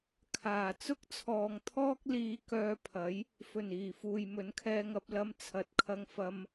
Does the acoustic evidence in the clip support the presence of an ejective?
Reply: no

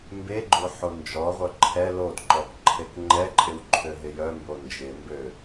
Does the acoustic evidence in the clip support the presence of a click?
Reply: yes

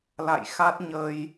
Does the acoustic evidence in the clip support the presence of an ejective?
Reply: no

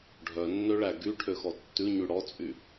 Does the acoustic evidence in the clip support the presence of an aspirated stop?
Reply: yes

